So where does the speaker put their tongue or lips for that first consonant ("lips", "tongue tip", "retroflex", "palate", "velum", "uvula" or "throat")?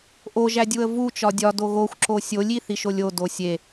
throat